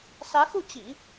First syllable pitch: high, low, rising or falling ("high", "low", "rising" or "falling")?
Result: rising